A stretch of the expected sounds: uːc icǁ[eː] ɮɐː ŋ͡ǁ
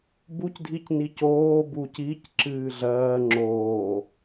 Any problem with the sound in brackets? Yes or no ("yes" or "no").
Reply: yes